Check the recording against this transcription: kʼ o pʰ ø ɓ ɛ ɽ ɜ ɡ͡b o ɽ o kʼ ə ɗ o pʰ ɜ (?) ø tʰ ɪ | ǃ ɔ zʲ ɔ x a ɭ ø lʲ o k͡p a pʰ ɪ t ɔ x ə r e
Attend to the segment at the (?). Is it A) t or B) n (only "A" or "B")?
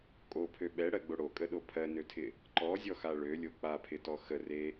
B